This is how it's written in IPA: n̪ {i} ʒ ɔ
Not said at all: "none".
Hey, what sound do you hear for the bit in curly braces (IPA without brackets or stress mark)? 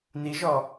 i